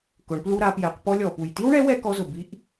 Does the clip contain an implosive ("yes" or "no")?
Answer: no